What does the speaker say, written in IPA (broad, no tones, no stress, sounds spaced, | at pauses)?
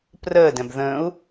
p r əː d ɛ̃ b ð ə̃ː u̯